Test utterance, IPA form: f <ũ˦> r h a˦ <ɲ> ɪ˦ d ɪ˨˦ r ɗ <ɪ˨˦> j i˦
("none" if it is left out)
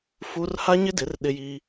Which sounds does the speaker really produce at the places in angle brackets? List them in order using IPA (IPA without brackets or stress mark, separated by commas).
u˦, ɲ, ɪ˦